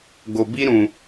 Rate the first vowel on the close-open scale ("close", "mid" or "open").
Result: mid